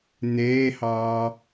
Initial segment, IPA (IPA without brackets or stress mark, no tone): n̪